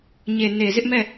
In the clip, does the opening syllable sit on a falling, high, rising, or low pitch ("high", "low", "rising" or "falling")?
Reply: low